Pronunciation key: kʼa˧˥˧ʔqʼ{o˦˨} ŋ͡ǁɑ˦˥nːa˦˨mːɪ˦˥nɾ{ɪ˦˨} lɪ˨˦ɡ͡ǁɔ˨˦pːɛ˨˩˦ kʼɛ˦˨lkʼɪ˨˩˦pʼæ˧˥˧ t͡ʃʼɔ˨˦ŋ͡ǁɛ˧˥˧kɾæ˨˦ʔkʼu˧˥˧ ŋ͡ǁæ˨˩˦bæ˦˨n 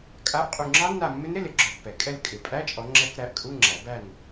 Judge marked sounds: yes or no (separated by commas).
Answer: no, no